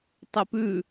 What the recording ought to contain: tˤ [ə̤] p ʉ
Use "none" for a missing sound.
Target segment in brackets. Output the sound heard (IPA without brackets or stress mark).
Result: ə